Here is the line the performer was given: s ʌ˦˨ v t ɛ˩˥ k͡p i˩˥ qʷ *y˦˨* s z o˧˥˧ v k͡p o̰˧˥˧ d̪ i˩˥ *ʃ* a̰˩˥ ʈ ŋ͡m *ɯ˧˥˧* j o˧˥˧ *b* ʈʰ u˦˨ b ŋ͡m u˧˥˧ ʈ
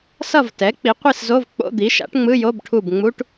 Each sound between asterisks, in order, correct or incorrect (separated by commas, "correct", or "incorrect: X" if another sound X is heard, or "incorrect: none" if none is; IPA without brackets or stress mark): incorrect: i˦˨, correct, correct, correct